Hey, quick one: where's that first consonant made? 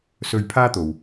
tongue tip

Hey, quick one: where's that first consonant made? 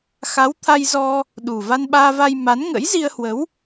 velum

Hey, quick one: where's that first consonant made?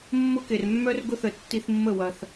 lips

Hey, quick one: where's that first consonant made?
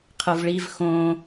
uvula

